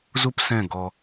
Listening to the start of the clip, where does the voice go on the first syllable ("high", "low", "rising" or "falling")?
high